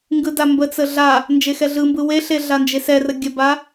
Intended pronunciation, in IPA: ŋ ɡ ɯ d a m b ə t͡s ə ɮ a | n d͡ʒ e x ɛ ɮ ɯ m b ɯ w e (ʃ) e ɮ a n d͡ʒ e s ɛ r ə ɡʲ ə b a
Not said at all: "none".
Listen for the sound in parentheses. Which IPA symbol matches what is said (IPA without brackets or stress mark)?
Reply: ɬ